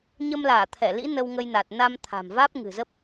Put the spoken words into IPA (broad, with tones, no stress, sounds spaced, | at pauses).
ɲ ə˧ m l aː˧˩ t̪ʰ ɛ˧˩ l ḭ˧˥ n ə˧ w ŋ ə˧ j n a˨˩ t̚ n a˧ m t̪ʰ a̤˨˩ m v aː˦˥ p̚ ŋ ɨ̤˨˩ z ə˦˥ p̚